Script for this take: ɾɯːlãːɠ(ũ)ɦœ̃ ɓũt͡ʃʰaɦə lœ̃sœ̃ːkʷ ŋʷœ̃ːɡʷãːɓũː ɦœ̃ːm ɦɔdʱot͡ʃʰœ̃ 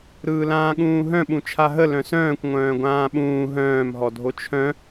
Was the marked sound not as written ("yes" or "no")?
yes